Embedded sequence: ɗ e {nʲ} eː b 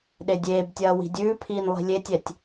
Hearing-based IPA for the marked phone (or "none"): dʲ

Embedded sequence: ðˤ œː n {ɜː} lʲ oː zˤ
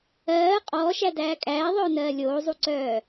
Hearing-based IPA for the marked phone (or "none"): ɜː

